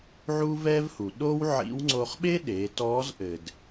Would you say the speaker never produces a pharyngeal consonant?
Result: no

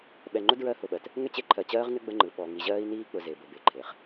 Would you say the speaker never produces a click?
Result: no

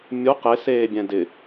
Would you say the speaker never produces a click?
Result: yes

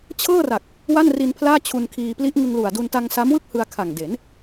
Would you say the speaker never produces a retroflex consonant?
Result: yes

